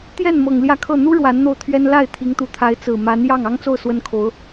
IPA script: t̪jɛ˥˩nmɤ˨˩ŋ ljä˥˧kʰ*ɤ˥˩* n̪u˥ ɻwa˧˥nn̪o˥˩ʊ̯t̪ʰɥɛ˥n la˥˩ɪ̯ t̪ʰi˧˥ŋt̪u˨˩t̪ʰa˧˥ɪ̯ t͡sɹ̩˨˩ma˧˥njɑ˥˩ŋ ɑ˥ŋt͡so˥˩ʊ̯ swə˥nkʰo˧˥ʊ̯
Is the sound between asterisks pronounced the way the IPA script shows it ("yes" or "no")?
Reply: yes